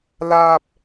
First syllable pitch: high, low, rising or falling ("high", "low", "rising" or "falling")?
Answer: high